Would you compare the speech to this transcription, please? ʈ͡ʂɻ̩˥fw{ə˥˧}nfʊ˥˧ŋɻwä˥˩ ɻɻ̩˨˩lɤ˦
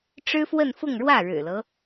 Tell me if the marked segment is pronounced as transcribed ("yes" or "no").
yes